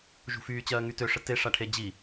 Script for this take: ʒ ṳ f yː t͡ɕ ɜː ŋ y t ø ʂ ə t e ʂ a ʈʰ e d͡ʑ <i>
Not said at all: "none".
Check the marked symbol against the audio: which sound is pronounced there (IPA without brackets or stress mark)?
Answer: i